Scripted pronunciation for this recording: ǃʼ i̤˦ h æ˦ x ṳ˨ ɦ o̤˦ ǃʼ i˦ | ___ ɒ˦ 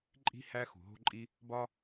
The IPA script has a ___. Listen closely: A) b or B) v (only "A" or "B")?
A